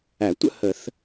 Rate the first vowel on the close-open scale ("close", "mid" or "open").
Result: open